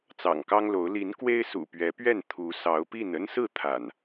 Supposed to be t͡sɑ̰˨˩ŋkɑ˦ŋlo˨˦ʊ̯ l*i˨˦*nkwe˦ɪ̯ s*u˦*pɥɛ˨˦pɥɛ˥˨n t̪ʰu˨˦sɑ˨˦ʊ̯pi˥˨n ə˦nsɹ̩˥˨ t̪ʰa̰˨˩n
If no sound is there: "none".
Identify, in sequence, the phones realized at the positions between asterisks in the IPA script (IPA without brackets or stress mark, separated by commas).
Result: i˨˦, ṵ˨˩